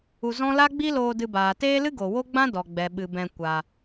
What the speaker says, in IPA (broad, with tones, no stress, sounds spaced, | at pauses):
u˧ z ɔ̃˦ l a˦ ɡ͡b i˦ l oː˧ d ɨ˧ b aː˨ t eː˦ l ɨ˦ ɡ o˨ w o˦ ɡ͡b ã˦ d ɔ˨ ɡ͡b ɛ˨ ɓ ɨ˨ b ɛ̃˧ kʷ a˧